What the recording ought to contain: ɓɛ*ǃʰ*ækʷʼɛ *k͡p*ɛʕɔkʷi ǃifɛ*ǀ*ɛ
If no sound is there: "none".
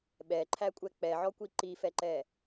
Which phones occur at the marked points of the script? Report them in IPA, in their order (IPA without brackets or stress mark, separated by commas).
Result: ǃʰ, k͡p, ǃ